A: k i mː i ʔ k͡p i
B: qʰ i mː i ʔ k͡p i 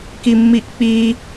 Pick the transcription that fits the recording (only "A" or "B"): A